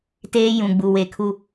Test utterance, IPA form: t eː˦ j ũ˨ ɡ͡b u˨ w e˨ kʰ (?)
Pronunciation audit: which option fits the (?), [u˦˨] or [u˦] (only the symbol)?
u˦